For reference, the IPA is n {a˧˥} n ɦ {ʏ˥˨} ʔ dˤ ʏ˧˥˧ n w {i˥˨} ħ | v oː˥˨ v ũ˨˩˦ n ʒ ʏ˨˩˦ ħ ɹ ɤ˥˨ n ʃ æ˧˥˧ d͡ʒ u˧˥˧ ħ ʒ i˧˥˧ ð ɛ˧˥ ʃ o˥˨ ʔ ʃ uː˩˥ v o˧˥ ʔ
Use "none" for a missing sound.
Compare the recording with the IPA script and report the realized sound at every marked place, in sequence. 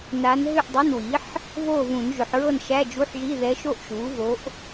a˧˥, ʏ˥˨, i˩˥

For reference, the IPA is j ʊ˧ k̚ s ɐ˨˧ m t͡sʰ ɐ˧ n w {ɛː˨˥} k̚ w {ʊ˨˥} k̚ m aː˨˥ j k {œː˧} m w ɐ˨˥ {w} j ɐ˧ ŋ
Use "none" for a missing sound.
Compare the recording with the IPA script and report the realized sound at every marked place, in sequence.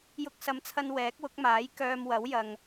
ɛː˨˥, ʊ˨˥, œː˧, w

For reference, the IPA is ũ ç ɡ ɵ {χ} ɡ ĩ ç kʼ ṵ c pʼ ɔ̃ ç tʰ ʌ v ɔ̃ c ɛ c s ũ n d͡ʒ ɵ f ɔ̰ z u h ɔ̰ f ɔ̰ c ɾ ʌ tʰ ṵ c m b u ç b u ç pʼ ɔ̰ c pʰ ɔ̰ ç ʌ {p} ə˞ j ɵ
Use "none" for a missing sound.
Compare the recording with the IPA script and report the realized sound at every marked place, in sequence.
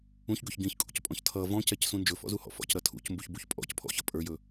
ç, pʼ

